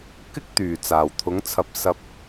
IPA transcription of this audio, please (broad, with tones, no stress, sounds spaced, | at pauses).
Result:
k ɪ˥ k̚ t̪ yː˨˩ t͡s aː˨˩ w t̪ʰ ʊ˨˥ ŋ t͡sʰ ɐ˧ p̚ s ɐ˧ p̚